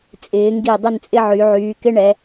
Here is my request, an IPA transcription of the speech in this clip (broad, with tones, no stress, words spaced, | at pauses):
t͡sʼɪː˩˧ŋɡi˧˩ dˤɪ˥˧nt͡sʼɪ˥ʕy˩˧ ʕyː˩˧kɪ˥ ɳɛ˩˧